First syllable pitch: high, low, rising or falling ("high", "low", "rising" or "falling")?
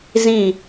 falling